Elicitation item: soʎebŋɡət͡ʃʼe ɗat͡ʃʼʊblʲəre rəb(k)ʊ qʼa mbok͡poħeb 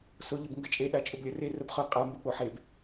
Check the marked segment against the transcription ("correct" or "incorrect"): incorrect